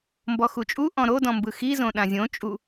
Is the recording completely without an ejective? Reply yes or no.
no